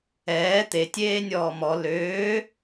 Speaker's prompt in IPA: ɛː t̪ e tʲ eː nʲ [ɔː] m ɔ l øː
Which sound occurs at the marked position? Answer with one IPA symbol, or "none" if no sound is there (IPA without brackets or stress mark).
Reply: ɔː